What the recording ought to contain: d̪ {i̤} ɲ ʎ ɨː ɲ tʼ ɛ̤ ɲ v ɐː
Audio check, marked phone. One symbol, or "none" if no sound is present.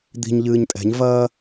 i̤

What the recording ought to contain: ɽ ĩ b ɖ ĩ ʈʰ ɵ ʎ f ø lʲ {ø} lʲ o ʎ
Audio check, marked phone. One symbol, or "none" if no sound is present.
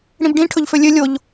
ø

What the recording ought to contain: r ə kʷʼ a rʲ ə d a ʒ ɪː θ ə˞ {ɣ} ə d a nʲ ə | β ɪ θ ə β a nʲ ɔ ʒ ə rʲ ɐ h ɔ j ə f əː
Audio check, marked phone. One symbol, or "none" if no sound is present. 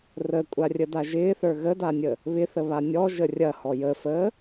ɣ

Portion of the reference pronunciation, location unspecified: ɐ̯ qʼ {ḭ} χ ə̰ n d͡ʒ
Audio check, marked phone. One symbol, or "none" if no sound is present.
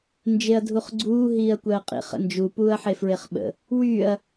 ḭ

